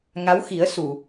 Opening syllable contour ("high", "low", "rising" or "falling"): rising